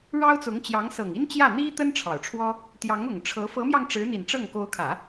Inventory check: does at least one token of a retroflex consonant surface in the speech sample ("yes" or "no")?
yes